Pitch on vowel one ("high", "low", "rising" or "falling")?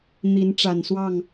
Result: rising